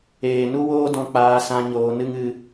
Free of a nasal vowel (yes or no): no